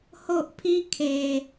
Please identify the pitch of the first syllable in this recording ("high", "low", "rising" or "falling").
high